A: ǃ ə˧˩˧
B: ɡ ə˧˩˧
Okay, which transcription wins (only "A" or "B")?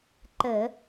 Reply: A